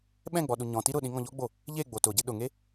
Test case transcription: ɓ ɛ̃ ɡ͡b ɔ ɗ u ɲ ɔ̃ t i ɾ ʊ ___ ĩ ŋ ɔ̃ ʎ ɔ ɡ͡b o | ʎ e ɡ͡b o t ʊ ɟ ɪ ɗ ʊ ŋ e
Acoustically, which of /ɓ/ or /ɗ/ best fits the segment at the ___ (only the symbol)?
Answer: ɗ